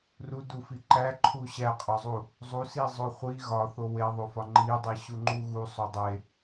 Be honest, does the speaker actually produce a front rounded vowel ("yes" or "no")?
no